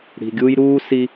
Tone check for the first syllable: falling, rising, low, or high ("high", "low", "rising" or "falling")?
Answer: low